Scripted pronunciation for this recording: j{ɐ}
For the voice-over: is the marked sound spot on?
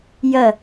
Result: yes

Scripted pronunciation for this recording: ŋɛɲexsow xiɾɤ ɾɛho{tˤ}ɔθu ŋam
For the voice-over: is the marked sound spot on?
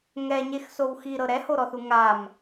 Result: no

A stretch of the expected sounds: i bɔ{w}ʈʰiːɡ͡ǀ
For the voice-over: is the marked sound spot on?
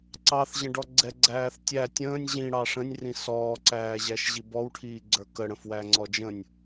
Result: yes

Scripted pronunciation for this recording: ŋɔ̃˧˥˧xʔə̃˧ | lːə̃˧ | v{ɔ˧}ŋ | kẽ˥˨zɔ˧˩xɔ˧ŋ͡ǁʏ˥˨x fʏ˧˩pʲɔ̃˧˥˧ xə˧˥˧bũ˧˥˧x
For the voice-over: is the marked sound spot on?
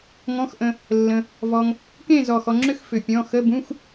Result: yes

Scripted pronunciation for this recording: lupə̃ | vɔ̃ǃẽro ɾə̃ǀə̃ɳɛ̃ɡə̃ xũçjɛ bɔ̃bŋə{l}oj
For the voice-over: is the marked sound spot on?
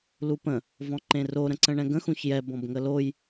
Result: yes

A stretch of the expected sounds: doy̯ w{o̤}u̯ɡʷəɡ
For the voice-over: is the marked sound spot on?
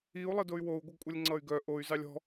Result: no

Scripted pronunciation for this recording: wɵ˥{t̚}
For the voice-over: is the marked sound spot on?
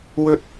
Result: yes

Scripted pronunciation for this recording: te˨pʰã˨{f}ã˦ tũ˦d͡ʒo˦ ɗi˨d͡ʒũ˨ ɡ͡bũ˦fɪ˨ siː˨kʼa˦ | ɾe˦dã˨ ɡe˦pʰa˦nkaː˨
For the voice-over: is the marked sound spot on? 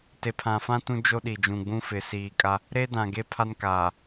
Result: yes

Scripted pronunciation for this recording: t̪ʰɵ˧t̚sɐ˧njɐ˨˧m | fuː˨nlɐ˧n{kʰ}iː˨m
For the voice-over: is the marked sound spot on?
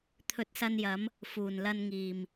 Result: no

